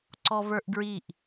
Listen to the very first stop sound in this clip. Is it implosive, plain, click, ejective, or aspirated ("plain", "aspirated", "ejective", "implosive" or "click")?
click